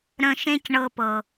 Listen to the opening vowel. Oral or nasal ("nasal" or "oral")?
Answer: nasal